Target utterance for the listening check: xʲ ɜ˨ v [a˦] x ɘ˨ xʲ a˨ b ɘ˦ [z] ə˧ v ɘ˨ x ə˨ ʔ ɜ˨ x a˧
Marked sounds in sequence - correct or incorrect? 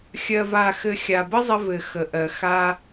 incorrect: a˨, incorrect: zˤ

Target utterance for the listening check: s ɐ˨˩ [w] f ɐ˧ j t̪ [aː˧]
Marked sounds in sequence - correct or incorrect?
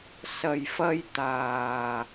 incorrect: j, incorrect: aː˨˩

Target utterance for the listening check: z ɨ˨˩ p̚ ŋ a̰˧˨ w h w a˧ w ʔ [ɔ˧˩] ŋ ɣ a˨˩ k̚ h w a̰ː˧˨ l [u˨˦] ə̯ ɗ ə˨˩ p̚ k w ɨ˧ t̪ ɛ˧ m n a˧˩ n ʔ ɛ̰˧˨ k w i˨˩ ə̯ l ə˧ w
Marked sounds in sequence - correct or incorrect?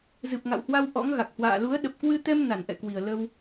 incorrect: ɔ̰˧˥, correct

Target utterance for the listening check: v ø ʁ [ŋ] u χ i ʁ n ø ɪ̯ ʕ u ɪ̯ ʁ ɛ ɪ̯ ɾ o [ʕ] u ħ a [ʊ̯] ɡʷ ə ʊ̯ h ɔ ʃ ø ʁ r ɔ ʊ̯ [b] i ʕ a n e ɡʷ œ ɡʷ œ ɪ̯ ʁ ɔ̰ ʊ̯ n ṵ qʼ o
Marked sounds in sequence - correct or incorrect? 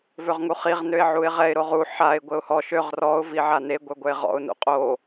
correct, incorrect: ʁ, incorrect: ɪ̯, incorrect: v

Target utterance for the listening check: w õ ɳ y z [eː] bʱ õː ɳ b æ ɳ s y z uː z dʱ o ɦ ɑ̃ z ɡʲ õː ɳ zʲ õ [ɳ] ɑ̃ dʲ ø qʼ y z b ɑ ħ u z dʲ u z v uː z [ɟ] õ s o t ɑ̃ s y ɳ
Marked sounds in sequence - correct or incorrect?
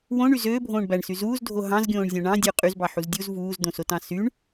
incorrect: øː, correct, incorrect: d̪

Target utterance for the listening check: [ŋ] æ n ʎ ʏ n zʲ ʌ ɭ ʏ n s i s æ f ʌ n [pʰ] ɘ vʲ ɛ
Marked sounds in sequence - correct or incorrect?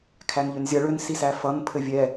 incorrect: kʰ, correct

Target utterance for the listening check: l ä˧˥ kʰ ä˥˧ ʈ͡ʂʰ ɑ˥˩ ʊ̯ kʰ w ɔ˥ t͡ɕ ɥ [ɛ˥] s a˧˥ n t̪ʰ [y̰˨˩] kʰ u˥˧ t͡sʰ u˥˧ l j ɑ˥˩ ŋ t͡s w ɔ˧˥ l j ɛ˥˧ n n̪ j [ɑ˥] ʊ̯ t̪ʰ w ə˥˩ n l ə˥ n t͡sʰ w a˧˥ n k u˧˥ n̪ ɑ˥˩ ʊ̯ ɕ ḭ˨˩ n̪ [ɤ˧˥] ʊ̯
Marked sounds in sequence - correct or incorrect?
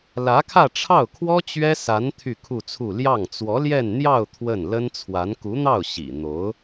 correct, incorrect: y˥˧, incorrect: ɑ˥˧, incorrect: o˧˥

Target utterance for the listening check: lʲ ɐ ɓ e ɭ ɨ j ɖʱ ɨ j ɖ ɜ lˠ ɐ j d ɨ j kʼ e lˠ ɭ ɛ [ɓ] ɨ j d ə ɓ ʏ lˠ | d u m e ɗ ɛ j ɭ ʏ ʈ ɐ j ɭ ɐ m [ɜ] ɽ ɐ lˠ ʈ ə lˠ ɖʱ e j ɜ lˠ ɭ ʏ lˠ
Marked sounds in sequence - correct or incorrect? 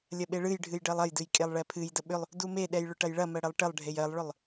incorrect: pʰ, correct

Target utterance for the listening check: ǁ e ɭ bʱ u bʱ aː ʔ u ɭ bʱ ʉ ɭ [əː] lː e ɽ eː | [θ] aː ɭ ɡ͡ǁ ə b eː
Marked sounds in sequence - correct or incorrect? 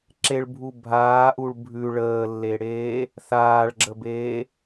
correct, correct

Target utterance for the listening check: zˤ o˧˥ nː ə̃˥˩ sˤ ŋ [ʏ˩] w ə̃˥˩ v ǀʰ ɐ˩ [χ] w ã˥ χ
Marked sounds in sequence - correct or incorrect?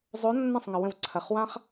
incorrect: ə˩, correct

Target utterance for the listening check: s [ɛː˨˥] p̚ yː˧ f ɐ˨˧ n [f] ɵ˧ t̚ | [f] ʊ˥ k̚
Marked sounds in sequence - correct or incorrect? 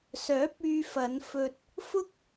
incorrect: œː˨˥, correct, correct

